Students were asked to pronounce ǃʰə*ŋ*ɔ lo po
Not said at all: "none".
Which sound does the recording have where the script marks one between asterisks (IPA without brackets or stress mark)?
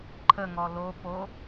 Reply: ŋ